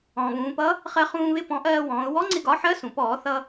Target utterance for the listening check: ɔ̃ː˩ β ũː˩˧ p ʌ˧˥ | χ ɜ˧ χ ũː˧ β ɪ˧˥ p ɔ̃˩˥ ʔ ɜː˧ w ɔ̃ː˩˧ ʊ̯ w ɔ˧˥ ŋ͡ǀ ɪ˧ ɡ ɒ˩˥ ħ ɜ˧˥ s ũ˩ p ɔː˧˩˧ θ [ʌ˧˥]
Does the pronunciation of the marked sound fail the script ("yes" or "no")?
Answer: yes